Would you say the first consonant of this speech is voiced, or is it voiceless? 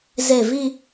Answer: voiced